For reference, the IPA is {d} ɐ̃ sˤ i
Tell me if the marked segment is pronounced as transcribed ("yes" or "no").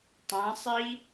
no